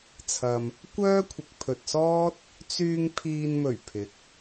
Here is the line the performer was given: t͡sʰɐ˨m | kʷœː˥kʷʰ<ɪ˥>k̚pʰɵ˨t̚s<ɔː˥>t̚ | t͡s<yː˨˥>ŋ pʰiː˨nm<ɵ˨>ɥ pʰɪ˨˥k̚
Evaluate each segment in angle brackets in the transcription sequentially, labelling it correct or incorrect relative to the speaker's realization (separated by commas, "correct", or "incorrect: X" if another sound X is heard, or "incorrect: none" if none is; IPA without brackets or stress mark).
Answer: incorrect: ɪ˨, correct, incorrect: yː˧, incorrect: ɵ˨˩